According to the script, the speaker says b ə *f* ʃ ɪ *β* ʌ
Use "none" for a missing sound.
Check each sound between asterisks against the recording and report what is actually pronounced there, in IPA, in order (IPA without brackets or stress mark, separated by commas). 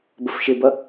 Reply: f, b